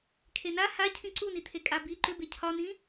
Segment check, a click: present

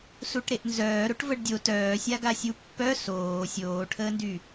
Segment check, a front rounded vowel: present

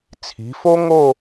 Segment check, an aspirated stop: present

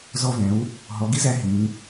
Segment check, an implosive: absent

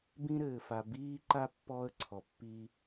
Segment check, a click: present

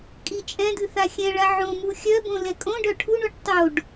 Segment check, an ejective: present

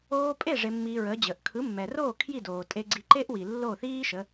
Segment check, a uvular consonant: absent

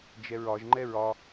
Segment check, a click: present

